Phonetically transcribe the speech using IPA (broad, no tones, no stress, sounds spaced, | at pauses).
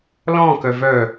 l ɔ̃ k œ v œ